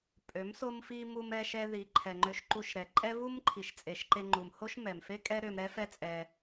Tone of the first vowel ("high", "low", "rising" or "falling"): rising